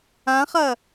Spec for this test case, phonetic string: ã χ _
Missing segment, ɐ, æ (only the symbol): ɐ